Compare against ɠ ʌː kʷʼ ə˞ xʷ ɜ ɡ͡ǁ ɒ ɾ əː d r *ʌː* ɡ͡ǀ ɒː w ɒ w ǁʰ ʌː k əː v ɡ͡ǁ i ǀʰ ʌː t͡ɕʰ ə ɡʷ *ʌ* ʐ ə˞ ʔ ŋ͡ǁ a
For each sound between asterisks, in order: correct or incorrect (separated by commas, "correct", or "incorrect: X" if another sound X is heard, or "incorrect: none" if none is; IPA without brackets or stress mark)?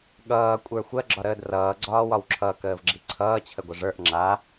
correct, incorrect: ə